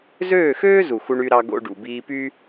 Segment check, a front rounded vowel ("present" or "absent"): present